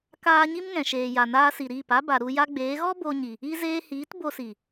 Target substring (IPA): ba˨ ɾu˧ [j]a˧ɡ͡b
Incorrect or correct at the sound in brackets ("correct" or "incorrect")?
correct